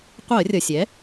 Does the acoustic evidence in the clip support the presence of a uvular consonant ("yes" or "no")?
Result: yes